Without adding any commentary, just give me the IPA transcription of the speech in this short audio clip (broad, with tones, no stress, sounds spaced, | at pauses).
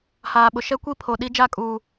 h aː˨ ɓ ʊ˨ ʃ ɛ˦ kʷ i˦˨ pʰ o˨ ɗ i˦ d͡ʒ a˦˨ kʼ uː˨